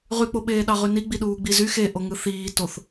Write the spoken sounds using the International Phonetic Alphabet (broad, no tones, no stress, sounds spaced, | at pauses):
ʁ y k͡p o ɓ eː ɗ ɑ ʁ y n i ɡ͡b i ɗ uː ɡ͡b i z y x e ʔ o ŋ ɯ θ iː t o θ